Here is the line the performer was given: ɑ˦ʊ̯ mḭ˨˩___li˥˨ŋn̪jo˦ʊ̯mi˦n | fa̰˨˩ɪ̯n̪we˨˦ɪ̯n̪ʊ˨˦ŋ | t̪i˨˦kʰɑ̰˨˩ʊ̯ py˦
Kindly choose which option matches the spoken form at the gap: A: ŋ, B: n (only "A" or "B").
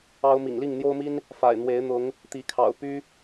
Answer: A